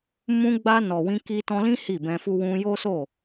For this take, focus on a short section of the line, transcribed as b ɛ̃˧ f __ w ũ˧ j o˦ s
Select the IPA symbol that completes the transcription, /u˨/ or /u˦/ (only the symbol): u˦